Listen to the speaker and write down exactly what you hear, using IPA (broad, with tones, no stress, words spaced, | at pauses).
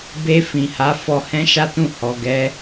be˧ fĩ˨ha˨˦ fɔ˧hɛ̃˦ʃa˦tũ˦˨ hɔ˨ɡɛ˨˦